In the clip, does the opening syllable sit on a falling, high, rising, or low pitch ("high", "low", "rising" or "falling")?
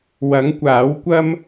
rising